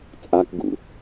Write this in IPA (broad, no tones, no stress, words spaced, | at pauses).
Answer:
t͡sʼakɡṵ